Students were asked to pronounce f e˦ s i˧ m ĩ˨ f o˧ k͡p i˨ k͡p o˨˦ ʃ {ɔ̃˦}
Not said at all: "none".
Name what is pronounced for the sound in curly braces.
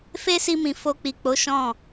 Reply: ɔ̃˦˨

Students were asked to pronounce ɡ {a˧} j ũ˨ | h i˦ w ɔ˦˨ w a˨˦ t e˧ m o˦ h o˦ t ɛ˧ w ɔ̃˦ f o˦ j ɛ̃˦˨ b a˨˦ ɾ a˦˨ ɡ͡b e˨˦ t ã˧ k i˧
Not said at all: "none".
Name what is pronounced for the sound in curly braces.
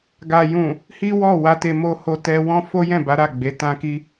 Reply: a˨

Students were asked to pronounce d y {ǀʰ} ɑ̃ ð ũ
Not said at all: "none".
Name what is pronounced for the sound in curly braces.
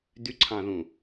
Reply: ǀʰ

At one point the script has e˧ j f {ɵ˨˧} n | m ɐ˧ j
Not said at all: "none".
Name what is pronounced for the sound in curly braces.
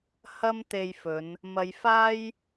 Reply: ɵ˨˧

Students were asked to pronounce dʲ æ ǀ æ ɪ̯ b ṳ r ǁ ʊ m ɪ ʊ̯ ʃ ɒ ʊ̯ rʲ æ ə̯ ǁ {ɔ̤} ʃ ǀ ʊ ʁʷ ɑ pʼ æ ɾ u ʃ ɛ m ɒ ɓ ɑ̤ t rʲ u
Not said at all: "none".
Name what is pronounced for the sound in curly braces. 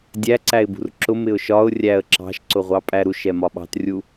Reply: ɑ̤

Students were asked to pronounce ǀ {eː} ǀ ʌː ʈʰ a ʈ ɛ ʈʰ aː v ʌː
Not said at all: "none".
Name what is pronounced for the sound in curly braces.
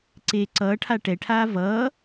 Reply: eː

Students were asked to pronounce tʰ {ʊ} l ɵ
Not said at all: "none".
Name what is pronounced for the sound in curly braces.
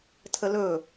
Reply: ə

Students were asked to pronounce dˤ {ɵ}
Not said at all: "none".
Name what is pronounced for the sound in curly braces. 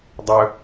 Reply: ɵ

